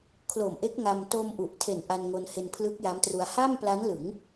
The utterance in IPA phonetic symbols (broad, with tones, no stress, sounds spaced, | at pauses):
kʰ l o˨˩ m ʔ e˦˥ k̚ ŋ a˧ m t o˧ m ʔ u˨˩ ʔ tʰ e˨˩ n ʔ a˧ n ŋ o˧ n h e˧ n pʰ l ɯ˦˥ k̚ j a˦˥ m t r u˧ a̯ h a˥˩ m p l a˦˥ n l ɯ˩˦ ŋ